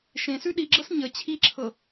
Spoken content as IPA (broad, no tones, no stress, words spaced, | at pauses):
ʃẽsʉ ɗiɡ͡ǁɤs ɲə t͡ɕʰiǁʰɤ